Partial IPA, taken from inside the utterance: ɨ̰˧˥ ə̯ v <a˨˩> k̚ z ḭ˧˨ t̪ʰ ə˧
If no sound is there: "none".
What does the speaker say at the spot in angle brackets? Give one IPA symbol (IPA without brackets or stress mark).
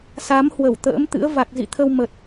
a˨˩